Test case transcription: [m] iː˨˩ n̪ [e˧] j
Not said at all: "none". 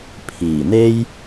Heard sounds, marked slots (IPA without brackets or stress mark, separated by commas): pʰ, e˥